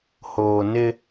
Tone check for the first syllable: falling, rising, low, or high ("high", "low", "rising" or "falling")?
low